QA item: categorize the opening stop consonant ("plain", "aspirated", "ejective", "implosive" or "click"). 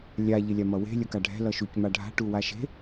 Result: plain